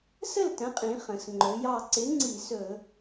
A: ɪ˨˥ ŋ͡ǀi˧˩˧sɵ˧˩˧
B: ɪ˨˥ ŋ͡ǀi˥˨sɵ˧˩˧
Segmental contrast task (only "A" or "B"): A